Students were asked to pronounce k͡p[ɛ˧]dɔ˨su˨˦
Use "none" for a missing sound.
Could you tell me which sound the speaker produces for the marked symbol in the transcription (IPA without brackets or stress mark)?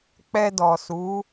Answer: ɛ˧